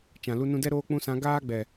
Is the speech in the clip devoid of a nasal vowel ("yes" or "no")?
no